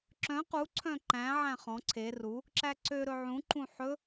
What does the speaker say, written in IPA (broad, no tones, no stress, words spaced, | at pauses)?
ǁœ̃ qu ǀʰœ̃ǃæ̃ ʕæ̃χɔ̃ ǀʰe ru | ǁæǀø ɾɵʕũ ǃũħɵ